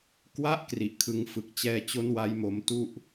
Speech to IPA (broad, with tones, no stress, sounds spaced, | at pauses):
k w a˦˥ ʔ k r i˨˩ ʔ kʰ ɯ˧ ŋ f ɯ˨˩ k̚ t͡ɕ ɛː˧ t͡ɕ o˦˥ n w a˦˥ j m o˧ m t u˥˩ ʔ